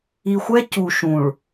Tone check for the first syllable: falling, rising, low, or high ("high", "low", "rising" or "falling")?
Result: low